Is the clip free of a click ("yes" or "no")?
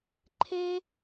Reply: no